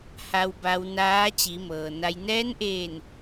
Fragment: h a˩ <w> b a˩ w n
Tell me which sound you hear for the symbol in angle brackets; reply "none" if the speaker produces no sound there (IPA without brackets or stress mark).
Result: w